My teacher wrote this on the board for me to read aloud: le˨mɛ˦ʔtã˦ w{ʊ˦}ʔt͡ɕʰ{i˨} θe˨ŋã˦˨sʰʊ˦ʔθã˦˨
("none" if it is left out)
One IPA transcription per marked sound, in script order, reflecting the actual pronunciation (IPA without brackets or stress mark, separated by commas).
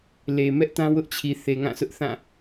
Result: ʊ˦, i˨